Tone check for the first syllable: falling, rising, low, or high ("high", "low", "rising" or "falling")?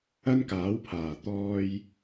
high